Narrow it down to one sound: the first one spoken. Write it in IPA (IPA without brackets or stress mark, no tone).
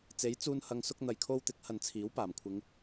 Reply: t͡s